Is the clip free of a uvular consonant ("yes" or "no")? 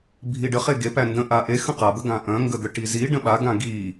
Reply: no